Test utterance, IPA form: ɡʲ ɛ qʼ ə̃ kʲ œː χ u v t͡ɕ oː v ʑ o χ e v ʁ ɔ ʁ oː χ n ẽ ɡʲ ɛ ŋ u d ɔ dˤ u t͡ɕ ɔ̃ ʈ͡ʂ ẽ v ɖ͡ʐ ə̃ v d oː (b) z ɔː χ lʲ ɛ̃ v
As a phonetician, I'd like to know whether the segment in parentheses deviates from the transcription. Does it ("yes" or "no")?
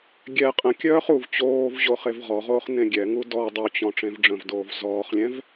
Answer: yes